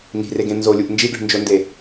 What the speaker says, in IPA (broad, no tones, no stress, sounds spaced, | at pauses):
n i̤ r e ɡ ẽ n z o lʲ u ʔ n d͡ʒ i ɡ ɭ i̤ n d͡ʒ o n d e